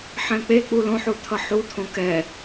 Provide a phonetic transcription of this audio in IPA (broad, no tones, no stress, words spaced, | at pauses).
ħɛ̃k͡pek͡pu lõħu t̪ʰʌħut̪ʰõ kɛ